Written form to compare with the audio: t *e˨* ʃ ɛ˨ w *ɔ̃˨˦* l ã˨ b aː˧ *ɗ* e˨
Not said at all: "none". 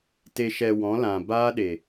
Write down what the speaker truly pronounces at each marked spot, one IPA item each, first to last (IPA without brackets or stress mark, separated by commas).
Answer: e˨, ɔ̃˨˦, ɗ